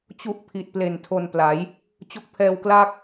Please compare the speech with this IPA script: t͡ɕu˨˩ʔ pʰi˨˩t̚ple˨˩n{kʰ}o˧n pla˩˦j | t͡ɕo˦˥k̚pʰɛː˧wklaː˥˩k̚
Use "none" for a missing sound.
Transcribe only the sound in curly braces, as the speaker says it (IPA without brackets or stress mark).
tʰ